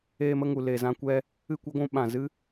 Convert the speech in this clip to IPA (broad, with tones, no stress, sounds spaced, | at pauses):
eː˦ m ə˦ ŋ u˨ l e˨ z ã˧ kʷ ɛ˦ | ɨ˦˨ kʷ e˦ ɡʷ ũ˧ ɓ ã˨ z ɨ˦